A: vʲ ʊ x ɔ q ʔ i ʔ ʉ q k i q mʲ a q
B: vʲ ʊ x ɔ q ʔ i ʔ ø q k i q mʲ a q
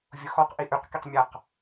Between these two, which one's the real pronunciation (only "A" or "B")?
A